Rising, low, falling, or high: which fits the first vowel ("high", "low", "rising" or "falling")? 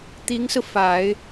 rising